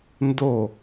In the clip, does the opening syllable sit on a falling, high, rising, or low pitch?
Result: falling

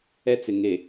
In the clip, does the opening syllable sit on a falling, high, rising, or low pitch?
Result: high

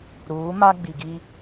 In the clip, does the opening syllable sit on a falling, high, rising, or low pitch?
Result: rising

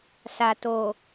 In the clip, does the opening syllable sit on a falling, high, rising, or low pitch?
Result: low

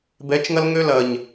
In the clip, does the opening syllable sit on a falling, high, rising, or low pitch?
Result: rising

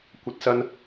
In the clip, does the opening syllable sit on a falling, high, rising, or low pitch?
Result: rising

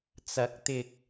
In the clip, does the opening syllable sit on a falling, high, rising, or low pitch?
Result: rising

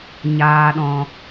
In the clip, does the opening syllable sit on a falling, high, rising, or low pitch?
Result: low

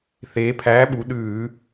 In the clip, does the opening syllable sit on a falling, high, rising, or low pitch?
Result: rising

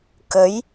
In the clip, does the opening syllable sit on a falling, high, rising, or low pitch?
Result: rising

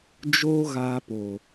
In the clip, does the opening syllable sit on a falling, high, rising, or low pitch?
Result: high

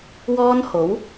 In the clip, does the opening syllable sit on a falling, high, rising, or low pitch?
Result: high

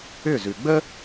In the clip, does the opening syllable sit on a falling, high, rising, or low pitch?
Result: falling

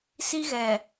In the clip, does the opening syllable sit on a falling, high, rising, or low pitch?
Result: high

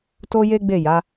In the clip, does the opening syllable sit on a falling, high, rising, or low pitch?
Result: high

